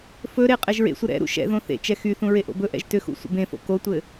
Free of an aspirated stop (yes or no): yes